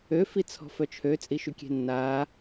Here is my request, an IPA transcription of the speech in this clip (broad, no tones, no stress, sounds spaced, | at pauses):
ø f i t͡sʰ ɔ̤ f œ t͡ʃʰ ø t͡sʼ i ʃ y kʲ e̤ nː aː